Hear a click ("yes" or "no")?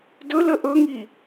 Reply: no